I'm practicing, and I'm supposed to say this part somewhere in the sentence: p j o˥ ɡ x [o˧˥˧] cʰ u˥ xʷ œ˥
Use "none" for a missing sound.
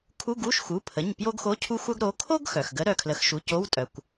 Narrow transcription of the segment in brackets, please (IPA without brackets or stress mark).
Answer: o˧˥˧